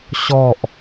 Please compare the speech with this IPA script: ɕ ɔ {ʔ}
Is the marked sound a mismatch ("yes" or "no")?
no